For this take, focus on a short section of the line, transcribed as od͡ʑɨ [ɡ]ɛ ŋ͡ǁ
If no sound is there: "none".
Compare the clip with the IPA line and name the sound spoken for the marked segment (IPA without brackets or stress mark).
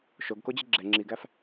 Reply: ɡ͡ǁ